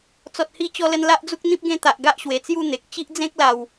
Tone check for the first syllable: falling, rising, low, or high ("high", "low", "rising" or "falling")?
low